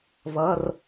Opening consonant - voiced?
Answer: yes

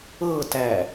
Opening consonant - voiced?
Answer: no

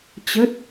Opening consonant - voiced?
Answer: no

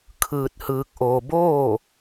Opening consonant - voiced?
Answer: no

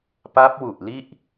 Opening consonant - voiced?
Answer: no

